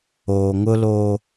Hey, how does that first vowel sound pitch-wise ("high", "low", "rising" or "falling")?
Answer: low